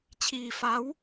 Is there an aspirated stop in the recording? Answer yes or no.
yes